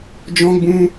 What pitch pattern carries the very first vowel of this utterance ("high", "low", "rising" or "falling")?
high